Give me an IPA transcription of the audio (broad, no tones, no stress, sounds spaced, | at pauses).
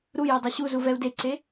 ɾ u j o dˤ o ɕ u z u v ɛ u̯ d e ǀ e